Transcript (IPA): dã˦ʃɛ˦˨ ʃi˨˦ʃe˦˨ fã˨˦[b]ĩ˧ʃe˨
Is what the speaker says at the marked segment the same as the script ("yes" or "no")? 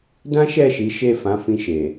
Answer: no